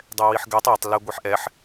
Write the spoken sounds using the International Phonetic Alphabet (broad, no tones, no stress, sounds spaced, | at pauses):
dˤ ɛ w i ħ ɡ ɛ tˤ ɒ tˤ l ɛ ɡʷ i ħ ʔ ɛ ħ